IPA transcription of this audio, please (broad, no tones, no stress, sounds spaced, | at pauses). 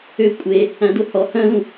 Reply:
ø kʷʼ e | æ̃ d o h ɔ h œ̃ l ũ